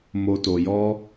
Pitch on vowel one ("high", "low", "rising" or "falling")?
low